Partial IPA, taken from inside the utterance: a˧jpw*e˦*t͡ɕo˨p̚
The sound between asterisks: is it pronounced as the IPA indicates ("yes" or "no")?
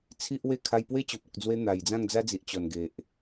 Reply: yes